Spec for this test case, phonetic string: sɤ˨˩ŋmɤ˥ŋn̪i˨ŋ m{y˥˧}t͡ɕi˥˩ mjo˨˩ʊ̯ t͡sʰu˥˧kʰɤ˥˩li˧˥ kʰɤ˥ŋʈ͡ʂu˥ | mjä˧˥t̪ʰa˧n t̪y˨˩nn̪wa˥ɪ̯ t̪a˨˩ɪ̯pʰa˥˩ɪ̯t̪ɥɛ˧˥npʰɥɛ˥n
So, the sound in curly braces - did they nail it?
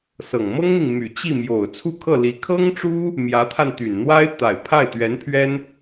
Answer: no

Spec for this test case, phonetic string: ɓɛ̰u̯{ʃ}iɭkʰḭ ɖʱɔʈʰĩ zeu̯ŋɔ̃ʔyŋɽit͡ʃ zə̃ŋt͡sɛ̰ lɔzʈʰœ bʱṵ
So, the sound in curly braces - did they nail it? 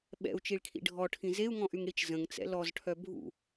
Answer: no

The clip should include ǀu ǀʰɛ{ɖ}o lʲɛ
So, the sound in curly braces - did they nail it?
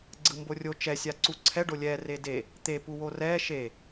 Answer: yes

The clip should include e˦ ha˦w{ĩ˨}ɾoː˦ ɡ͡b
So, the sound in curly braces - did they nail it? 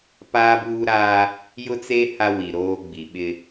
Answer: no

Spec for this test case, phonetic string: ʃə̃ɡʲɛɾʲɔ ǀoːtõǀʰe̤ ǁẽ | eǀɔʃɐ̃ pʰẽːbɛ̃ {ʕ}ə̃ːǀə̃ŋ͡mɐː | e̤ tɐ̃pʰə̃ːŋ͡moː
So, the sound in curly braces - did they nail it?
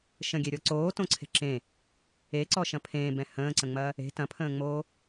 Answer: no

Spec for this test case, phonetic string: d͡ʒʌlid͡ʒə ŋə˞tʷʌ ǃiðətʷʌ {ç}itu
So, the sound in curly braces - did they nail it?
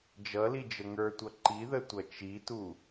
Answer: no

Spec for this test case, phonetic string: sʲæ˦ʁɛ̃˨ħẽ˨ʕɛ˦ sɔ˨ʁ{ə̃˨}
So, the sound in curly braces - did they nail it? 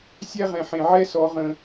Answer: yes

